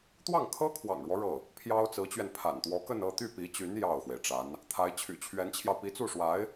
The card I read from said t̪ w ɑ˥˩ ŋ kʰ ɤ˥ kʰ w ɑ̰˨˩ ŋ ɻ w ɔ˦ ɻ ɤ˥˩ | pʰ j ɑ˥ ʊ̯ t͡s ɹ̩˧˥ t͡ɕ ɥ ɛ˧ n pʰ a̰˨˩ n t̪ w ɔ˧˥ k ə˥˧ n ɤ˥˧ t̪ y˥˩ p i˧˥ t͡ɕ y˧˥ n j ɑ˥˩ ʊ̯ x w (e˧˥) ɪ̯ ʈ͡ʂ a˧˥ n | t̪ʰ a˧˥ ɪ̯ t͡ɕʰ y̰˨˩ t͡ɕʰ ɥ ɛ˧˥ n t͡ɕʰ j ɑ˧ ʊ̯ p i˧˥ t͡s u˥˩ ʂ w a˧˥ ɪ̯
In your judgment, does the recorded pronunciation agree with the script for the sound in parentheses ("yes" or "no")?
no